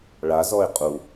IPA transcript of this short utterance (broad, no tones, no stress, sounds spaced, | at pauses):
ɭ a z ɔ ɪ̯ qʼ u